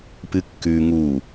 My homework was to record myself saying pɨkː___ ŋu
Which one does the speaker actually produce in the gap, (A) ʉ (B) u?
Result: A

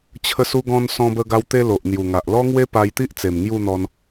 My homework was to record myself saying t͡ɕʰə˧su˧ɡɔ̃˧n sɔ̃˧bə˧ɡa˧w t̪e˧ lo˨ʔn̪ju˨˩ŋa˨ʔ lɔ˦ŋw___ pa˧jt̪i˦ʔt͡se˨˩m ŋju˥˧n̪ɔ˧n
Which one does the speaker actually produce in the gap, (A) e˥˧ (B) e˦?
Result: B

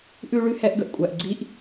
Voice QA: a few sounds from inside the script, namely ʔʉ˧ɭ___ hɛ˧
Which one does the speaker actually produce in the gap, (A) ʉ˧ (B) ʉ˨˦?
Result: A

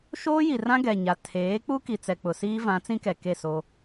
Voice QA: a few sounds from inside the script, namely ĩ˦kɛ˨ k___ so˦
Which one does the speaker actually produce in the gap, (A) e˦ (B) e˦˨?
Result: B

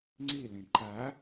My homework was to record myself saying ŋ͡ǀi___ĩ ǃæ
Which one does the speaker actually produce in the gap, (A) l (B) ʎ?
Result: A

